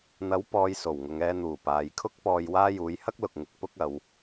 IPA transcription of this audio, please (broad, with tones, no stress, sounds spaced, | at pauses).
n̪ ɐ˨˥ w p ɔː˨˧ j s o˨˩ w ŋ ʊ˨ ŋ ɛː˧ n̪ uː˨˩ p aː˨ j kʰ ʊ˥ k̚ p ɔː˧ j w aː˥ j uː˨˥ j h ɐ˥ k̚ l ʊ˨ k̚ ŋ ɪ˨ k̚ p ʊ˥ k̚ ɐ˨˧ w